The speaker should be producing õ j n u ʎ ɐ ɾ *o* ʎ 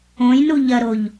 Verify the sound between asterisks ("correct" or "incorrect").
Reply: correct